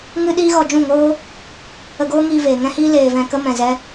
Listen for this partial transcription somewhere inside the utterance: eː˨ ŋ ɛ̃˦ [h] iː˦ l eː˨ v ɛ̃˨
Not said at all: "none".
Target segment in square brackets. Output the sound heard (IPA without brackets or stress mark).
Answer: h